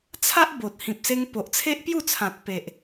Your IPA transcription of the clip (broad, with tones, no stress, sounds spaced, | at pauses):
t͡sʰ a˦ ʔ b o˨ t̚ h ĩ˨ p̚ s e˧ ŋ p o˨ ʔ t͡sʰ e˦ ʔ p j u˥˧ t͡sʰ ã˨ t̚ p e˨ ʔ